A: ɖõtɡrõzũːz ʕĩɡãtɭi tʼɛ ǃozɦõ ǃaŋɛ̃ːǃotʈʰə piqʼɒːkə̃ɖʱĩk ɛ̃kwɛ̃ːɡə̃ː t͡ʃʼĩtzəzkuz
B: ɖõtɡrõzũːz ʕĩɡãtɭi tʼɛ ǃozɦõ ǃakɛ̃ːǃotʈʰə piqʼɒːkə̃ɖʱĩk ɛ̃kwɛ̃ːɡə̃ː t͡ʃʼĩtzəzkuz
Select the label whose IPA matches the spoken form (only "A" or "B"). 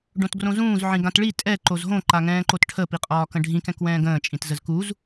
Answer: A